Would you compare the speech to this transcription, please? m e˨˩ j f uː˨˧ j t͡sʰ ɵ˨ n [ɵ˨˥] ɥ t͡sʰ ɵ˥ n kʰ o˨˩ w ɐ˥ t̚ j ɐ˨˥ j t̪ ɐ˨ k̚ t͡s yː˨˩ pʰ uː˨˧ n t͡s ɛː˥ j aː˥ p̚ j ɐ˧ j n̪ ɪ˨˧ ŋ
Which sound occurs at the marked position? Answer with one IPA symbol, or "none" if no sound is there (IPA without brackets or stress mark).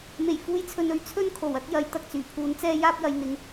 ɵ˨˥